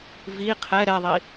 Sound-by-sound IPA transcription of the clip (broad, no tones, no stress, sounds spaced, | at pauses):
v i qʰ ɛ ɾ ɛ ðˤ i